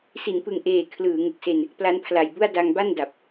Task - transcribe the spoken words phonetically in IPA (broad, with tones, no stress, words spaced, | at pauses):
si˩˦npɯ˨˩ŋʔeː˨˩ kʰlɯː˩˦ŋɯ˨˩k̚se˧n | pla˦˥npʰla˨˩jbu˥˩a̯ da˧ŋba˥˩nda˨˩p̚